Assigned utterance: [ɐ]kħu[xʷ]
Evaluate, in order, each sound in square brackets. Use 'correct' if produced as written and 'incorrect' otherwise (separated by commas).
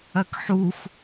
correct, correct